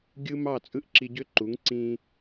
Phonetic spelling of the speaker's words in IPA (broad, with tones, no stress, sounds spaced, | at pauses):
ɡʲ ɯ˦ m ɑ˦˨ t͡sʼ ɯ˦ ʔ ǁ i˧ ɟ ø˦ ǃ u˨˦ ŋ ǀ ĩ˧